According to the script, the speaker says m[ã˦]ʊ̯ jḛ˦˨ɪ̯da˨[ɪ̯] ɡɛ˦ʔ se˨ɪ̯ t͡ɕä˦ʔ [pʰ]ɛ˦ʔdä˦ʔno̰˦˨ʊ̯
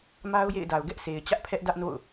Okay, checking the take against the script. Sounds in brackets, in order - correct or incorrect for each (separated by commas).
incorrect, incorrect, correct